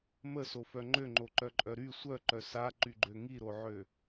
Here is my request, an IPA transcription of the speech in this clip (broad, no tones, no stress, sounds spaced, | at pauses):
m ə s o f œ ŋ͡ǃ ø ŋ͡ǃ o ǃ œ ǃʼ œ ɾ y sʷ œ ǃ œ s a ǃ y ɡ͡ǃ ø ŋ i ɾ o ʕ ø